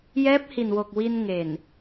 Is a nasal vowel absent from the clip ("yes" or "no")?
yes